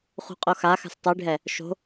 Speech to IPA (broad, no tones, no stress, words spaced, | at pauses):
χṳqʼoxaxa̤s tˤiɖʱɛ | ʃo̤